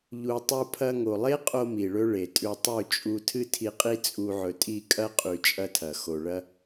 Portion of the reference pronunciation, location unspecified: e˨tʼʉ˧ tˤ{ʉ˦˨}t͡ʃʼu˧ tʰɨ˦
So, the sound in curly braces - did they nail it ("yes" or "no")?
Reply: yes